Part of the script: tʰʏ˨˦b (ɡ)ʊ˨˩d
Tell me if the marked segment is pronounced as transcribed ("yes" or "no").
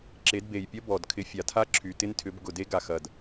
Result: yes